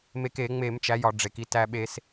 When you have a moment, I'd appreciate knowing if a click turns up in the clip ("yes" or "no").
no